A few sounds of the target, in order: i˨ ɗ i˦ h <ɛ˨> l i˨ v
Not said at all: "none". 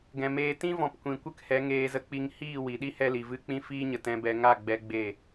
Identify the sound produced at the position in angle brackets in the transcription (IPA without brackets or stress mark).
ɛ˧